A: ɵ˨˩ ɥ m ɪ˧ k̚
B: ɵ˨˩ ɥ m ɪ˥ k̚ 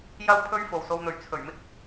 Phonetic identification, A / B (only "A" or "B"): B